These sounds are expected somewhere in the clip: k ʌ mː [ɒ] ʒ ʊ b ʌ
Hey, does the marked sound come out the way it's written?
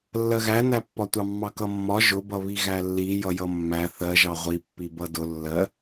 yes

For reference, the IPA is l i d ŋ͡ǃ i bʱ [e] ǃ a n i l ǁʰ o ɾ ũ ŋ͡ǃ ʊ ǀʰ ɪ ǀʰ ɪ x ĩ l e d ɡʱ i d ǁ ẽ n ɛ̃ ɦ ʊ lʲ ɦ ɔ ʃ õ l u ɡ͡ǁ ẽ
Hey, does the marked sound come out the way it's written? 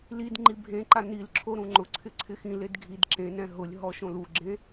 no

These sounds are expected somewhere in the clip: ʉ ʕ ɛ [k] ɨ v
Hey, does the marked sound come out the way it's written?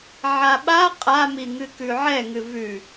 no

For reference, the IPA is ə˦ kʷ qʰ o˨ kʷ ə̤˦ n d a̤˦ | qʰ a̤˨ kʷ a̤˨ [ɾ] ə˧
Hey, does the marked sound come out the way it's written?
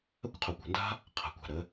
yes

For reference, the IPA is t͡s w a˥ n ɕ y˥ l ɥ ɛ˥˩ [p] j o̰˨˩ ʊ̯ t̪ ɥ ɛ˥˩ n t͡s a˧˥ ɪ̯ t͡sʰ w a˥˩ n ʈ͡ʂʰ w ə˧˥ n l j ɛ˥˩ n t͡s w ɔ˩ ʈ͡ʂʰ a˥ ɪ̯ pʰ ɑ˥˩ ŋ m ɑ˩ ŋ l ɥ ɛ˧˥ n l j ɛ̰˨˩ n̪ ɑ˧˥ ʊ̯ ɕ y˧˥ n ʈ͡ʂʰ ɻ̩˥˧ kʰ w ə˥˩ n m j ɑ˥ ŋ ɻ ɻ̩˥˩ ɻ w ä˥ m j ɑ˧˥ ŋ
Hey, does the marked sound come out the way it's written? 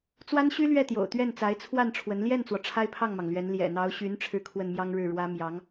no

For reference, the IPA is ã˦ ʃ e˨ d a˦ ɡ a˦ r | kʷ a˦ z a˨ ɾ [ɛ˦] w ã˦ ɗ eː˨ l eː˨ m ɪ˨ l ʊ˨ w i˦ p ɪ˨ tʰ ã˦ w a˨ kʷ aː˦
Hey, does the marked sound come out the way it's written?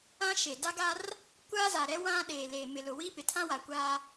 yes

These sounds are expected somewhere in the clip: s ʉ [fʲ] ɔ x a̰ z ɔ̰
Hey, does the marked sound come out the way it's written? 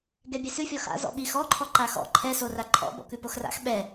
yes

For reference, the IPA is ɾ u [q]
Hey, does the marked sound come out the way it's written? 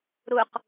yes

